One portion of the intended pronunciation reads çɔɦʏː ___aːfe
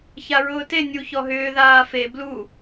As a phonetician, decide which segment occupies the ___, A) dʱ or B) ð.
B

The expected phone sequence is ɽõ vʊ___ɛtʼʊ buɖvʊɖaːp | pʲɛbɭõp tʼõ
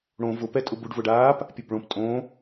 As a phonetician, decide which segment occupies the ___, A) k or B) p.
B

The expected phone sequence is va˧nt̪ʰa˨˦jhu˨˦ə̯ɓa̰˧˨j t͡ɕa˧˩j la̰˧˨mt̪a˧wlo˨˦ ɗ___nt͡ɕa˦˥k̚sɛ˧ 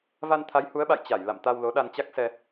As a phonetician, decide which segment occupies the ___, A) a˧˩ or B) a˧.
B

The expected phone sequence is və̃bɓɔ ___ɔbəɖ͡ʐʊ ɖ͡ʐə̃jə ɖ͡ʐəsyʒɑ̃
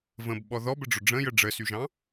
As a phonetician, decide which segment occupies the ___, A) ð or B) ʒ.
A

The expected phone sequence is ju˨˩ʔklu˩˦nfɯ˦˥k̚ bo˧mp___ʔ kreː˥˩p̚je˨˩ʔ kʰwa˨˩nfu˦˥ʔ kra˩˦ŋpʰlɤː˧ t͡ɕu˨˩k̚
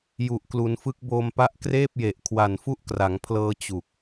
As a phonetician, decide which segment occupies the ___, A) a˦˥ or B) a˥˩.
A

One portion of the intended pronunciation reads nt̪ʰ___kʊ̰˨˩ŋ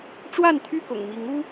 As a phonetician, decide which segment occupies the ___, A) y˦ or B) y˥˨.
B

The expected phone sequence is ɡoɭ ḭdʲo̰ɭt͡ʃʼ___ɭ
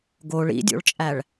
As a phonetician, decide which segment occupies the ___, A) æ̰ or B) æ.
B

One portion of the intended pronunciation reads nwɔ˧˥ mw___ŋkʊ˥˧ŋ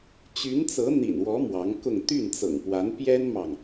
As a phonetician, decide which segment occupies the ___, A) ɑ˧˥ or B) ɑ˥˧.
A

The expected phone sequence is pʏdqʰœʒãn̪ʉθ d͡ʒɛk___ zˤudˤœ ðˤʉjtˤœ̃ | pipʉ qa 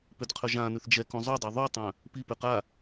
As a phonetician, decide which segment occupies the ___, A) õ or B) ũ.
B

